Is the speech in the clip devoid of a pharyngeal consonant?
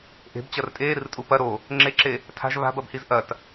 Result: yes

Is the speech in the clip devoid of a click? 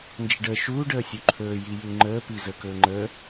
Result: no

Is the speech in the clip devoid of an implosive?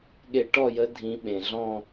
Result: no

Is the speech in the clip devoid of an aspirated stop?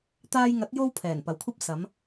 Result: no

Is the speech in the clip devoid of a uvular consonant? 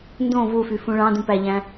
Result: yes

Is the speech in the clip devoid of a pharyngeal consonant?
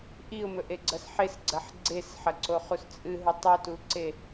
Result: no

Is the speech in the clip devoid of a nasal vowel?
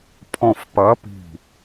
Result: no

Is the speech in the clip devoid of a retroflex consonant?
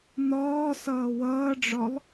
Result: no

